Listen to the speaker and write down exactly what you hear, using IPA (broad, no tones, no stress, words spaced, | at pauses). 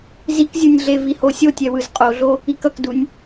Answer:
zikzʲunʲɮe vihosʲotʲɛ wɯzqʼoɮo | ikʌkdunʲ